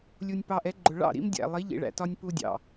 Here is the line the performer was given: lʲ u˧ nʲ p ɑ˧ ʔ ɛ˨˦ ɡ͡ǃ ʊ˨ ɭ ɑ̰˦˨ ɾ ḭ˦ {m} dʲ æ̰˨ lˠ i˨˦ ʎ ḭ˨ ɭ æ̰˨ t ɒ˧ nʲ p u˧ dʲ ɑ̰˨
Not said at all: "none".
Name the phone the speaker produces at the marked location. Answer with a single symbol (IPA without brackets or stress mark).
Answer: m